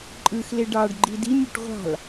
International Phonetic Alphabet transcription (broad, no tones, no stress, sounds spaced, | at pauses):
ǃʼ ɯ x l e ɖ ɑ ɖ ɡ͡ǃ i d i mʲ o ʈ ʁʷ ɑ̤ l